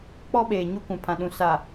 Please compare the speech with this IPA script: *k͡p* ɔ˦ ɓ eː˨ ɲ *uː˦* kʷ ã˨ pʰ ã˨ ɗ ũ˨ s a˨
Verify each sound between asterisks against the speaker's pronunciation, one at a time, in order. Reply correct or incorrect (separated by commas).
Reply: correct, incorrect